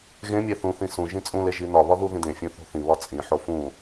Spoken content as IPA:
ɣ ẽ mʲ æ θ ũ θ ĩ s ũ ʒ ĩ t͡sʼ ũ l e ʒ i n ɒ β ɒ ð u ð ĩ d ẽ fʲ ũ θ o̤ θ ĩ β ɒ t͡sʼ ĩ ħ o f ũ

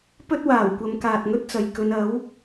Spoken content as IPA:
p ɵ˥ t̚ w aː˨˩ w kʷ ɐ˨˧ m k aː˨ t̚ ŋ ɵ˥ t̚ t͡s ɐ˨ j k ɵ˨˧ n ɐ˨˥ w

